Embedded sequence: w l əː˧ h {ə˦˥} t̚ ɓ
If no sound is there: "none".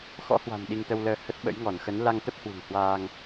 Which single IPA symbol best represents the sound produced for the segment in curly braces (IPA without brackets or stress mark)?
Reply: ə˦˥